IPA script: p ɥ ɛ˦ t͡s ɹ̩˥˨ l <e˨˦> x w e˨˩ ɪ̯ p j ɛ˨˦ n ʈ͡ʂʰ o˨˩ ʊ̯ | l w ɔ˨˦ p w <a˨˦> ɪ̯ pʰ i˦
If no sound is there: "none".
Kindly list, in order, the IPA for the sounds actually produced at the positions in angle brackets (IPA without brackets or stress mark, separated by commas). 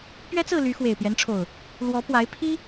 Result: y˨˦, a˨˦